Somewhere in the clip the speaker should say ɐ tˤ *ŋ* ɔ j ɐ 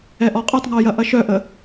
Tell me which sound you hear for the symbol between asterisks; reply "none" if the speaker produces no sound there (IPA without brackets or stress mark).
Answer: ŋ